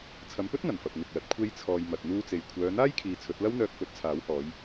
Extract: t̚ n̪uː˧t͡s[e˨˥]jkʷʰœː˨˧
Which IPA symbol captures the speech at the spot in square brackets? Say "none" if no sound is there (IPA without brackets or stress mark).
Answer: e˨